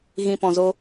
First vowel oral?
no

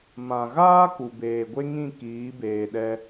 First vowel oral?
no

